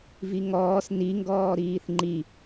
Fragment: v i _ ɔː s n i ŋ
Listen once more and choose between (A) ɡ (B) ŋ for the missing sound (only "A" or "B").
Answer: B